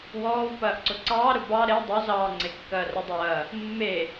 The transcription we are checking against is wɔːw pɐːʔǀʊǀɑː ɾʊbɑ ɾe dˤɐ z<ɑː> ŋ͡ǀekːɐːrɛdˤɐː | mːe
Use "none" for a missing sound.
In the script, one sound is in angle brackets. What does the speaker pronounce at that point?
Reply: ɑː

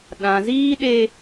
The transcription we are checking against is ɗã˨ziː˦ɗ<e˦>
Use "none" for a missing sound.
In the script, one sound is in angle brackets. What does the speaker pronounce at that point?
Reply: e˦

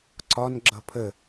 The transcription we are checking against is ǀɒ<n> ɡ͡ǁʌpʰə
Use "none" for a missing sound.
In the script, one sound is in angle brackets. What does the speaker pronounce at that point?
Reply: n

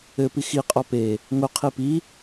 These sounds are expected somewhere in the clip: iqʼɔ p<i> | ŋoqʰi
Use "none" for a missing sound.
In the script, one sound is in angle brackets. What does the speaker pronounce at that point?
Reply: e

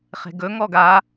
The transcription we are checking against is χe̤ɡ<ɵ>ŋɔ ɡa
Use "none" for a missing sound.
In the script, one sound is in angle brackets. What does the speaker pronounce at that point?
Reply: ɵ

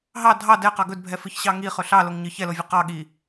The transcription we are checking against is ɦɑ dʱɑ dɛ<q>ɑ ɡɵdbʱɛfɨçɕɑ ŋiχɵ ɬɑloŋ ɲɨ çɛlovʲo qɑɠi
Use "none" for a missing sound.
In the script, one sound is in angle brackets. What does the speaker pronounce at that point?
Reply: q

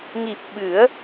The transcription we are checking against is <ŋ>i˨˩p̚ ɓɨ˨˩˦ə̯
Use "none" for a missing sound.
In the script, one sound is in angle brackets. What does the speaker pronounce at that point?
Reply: ŋ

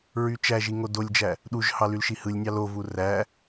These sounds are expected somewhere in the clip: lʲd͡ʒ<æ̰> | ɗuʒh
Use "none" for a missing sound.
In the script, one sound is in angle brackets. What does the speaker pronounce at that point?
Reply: æ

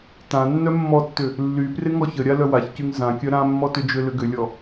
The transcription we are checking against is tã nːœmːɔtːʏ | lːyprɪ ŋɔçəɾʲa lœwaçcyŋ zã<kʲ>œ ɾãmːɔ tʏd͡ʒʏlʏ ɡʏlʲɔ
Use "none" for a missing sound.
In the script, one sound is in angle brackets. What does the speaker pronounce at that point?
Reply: kʲ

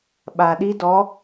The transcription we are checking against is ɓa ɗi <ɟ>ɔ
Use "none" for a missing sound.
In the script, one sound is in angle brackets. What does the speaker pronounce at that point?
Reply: d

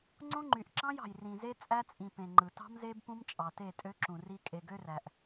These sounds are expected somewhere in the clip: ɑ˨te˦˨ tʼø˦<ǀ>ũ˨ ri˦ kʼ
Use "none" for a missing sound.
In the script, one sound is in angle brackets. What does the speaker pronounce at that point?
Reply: ǁ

